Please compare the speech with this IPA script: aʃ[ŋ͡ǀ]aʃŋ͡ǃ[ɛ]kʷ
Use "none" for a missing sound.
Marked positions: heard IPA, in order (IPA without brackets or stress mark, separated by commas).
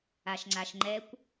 ŋ͡ǀ, ɛ